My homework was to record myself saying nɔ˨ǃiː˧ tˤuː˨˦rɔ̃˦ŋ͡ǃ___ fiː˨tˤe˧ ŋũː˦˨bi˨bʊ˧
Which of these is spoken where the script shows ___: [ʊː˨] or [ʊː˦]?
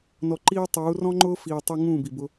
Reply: ʊː˦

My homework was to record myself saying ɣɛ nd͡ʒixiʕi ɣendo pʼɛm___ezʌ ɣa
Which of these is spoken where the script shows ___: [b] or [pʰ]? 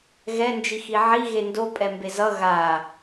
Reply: b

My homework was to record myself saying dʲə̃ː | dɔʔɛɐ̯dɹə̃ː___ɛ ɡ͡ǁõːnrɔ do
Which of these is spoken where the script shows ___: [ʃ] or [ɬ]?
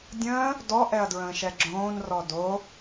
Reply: ʃ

